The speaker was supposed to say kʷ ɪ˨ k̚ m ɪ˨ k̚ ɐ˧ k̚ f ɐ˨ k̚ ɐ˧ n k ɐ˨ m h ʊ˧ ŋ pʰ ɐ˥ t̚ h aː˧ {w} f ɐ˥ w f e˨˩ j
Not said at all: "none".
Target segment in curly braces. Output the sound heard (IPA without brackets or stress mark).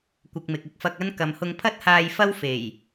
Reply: j